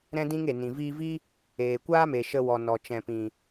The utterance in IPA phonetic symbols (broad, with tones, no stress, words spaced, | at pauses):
ɾɛ̃˦dĩ˦ŋe˨ nĩ˨viː˧vi˦ | eː˨kʷaː˦me˨ ʃə˧ wɔ˨ nɔ˨t͡ʃɛ̃˨pĩ˨